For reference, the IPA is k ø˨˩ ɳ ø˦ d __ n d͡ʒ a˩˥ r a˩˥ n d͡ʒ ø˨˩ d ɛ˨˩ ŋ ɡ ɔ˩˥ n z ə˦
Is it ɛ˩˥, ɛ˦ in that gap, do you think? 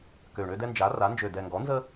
ɛ˦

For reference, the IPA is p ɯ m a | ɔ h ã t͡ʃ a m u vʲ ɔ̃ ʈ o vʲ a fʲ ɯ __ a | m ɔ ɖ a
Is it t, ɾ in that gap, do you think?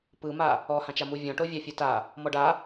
t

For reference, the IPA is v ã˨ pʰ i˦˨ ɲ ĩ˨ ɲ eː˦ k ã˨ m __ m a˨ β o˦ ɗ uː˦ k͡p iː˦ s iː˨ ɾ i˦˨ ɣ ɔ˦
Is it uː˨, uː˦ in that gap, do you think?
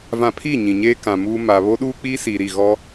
uː˦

